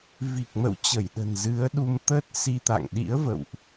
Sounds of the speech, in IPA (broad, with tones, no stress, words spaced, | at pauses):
vi˨˩k̚mə̰˧˨w t͡ɕə˧˩jɗə̤˨˩nzɨ˨˦ə̯ɗu˧m t̪ə˦˥t̚ si˧t̪a̰˧˨ŋ ɗḭ˧˥ə̯və̰˧˨wʔ